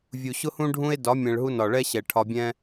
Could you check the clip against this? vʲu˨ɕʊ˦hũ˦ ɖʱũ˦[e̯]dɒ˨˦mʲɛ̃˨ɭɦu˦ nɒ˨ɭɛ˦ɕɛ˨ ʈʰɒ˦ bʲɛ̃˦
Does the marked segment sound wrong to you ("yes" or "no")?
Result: no